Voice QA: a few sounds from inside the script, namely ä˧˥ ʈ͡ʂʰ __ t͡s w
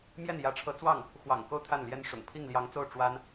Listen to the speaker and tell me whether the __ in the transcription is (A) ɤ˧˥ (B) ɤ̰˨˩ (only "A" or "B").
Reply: A